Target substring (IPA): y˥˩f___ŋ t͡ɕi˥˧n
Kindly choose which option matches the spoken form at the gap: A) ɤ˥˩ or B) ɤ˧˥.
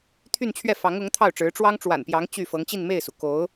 B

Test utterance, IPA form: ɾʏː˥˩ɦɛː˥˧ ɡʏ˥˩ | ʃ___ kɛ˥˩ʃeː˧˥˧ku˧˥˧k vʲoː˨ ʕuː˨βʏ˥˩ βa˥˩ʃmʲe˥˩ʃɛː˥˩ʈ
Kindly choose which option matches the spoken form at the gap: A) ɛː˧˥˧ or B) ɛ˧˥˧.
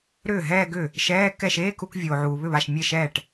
A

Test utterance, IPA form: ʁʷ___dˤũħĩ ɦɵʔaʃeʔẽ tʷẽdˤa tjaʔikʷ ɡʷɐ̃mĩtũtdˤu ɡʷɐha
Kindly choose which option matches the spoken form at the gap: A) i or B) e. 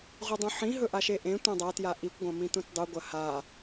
A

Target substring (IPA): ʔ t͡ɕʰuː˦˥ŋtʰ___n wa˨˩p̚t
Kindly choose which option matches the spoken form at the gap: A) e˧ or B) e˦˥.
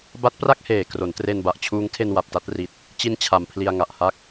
A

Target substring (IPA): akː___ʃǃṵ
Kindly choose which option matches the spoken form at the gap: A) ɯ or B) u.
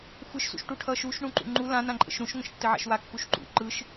B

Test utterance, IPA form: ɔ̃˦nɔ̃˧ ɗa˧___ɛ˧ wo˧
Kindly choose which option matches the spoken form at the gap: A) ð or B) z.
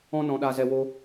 B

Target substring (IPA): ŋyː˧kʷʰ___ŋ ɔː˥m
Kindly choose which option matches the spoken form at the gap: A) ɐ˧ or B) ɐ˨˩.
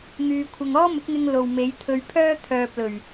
A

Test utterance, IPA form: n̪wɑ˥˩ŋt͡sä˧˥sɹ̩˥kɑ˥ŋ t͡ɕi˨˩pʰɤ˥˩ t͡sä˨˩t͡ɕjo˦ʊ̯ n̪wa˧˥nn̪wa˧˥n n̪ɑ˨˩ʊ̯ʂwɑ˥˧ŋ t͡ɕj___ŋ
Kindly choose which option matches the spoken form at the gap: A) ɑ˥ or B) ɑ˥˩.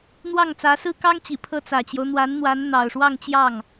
B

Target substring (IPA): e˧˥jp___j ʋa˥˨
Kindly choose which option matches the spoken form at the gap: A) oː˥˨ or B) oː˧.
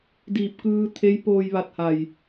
B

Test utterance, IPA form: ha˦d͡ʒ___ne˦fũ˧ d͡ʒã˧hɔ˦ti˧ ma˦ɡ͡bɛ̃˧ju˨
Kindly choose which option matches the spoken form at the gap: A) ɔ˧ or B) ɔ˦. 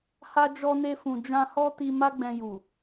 B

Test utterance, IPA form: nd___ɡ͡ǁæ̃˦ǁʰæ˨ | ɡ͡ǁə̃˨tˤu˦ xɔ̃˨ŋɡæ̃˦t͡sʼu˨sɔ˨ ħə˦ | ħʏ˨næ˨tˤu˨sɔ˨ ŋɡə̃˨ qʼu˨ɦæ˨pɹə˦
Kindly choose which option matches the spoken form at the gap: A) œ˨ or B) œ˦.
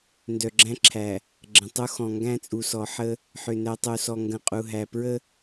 A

